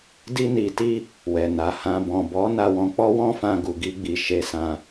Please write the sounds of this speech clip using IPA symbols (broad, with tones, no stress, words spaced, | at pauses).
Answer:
di˧ni˨ti˧ | wɛ˨na˨ hã˨bɔ̃˨bɔ˨˦ na˧wɔ̃˧ k͡pɔ˦wɔ̃˦fã˧ ɡu˨ɡi˧ɡ͡bi˨ ʃe˧sã˧